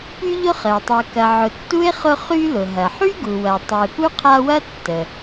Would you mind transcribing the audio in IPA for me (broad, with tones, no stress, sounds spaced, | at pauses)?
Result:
p y˥ ʎ ʊ˥ χ ə˩ o̯ tˤ u˨ k ɐ˨ ʕ ʊ˨ tː u˥ e̯ χ ʊ˦ χ y˦ l ʊ˩ ɦ ɐ˩ ħ y˥ ɡ u˩ w ɐ˩ tˤ ɐ˨ e̯ p u˥ qʰ a˦ w ɐ˥ tː ə˩